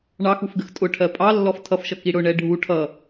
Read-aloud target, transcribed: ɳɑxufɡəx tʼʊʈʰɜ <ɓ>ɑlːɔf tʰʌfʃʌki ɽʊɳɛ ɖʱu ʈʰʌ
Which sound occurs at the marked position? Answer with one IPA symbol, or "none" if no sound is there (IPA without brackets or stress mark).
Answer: pʼ